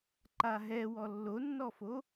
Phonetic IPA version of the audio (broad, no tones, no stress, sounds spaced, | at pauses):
ǃ a ɦ ɛ w ɔ lː o nː ɔ f o